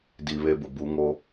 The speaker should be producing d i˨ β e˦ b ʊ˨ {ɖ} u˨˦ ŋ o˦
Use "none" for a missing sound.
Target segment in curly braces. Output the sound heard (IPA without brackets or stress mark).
b